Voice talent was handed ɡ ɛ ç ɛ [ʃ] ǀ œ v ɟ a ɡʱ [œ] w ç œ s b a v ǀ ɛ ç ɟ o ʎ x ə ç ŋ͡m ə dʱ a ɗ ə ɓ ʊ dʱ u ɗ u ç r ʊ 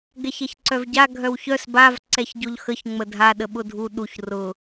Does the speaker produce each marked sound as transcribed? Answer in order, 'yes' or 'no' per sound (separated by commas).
no, yes